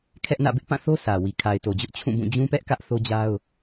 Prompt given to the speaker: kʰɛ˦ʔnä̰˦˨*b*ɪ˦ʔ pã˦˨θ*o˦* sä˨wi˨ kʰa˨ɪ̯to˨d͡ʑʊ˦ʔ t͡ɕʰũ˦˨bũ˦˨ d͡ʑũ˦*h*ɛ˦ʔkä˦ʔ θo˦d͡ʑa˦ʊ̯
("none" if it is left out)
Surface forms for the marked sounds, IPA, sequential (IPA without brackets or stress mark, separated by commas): b, o˦, p